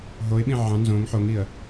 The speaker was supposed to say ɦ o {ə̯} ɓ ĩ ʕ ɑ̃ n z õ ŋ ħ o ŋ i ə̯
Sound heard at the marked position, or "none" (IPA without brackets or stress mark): ɪ̯